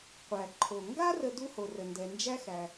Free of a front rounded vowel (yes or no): yes